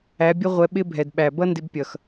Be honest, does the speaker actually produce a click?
no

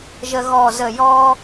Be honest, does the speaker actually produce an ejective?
no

